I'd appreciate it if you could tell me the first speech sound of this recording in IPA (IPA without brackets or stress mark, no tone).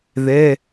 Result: ð